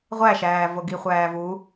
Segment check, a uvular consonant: present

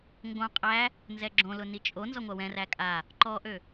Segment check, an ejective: present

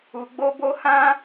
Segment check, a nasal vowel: present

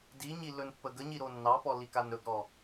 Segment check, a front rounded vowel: absent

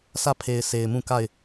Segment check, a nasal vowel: present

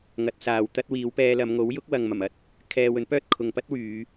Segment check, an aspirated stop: present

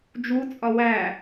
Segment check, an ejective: present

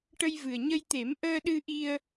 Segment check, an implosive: present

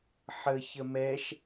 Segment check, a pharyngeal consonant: present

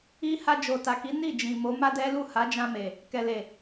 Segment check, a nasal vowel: present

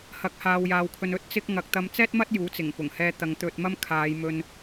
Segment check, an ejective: absent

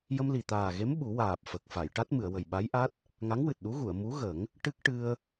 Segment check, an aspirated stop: absent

